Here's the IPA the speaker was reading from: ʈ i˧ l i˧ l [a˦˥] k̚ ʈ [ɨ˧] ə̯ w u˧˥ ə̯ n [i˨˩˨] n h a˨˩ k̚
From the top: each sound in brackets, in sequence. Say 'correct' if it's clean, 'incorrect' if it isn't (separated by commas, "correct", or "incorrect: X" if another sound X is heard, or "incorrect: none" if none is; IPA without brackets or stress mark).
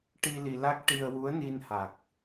correct, incorrect: i˧, incorrect: i˧